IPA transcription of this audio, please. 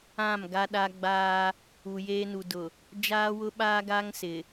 ã˦˨mɡa˦ɗa˦ ɡ͡baː˦ | u˨jeː˦nu˨dʊ˨ | d͡ʒaː˦wʊ˦ɓaː˦ɡaː˦ŋ sɪ˨

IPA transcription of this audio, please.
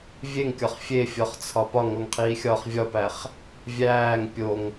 vʲeŋkʲɒχ fʲefʲɒχt͡sʰɒ pɒŋoŋqʰiːxʲɒːχ vʲɒpæχ | vʲæːŋ pʲoŋ

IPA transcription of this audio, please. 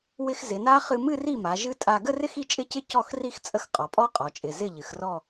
wɪ˧x zɪ˩˧na˦˥ χɨ˧mɨ˥˧ri˥˩ma˩˧ ʒɨ˦˥tʼa˧ ɡə˥˧rɪ˥˧x i˥˧t͡ʃʼɪ˥˧cɪ˥˧ cɔ˥˩xri˥˧xt͡sʼə˥˩x qʼɔ˩˧pʼɔ˦˥ qʼɔ˩˧t͡ʃʼɪ˩˧˩ zɪ˥˩ʎɨ˩˧xrɔ˥˧

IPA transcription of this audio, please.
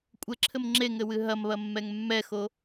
kʷʼɘǁʰɘm ŋ͡ǁeŋɘwɨ ɦɐmβɐmːɛŋ mːɛxo

